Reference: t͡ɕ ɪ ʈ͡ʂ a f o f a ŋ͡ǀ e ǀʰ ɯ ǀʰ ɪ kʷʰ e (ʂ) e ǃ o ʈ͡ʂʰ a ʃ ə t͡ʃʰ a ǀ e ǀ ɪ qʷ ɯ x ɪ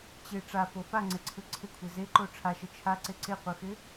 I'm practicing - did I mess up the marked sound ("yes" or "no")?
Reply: yes